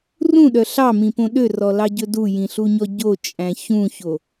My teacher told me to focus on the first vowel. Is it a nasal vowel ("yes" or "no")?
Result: yes